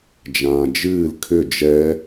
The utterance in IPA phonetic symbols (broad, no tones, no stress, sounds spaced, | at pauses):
d͡ʒ ãː d͡ʒ ɨː l kʰ ʏ d͡ʒ ɛ